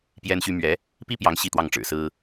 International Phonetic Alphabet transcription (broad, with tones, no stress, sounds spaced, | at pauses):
p j ɛ˥ n ɕ y˥ m ɥ ɛ˧˥ | p i˥ p j ɑ˧˥ ŋ ɕ i˥˧ t̪ w ɑ˥˩ ŋ ʈ͡ʂ ɻ̩˨˩ s ɹ̩˥